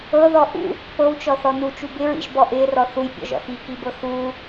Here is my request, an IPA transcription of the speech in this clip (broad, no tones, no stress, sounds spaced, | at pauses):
ɤ ð ɔ ʔ ṵ | p ɤ w t͡ʃ ɔ θ ɔ n u t͡ʃ u b ɪ ɹ ḭ ʒ b ɔ ʔ ɪː r ɔ θ u j pʲ ɔ̰ ʒ ɔ̰ x i k i b ɤ x uː